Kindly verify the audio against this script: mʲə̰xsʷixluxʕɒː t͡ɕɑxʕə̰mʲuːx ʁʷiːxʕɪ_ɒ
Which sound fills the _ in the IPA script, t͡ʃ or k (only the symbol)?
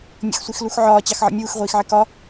k